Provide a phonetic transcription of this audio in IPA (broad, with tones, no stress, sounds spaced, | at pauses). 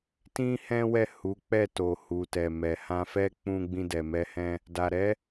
t ĩ˦ h ɛ̃˦ w ɛ˦˨ h u˨˦ k͡p ɛ˦˨ t o˨ h u˨ t ɛ˨ m ɛ˨ h ã˧ f ɛ˦ k͡p ũ˧ ɡ͡b ĩ˧ d ɛ˨ m ɛ˧ h ɛ̃˧ | d a˨ ɾ ɛ˨˦